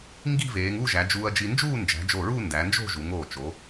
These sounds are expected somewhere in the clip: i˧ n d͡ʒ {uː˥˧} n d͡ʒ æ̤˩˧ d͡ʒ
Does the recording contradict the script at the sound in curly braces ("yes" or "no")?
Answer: no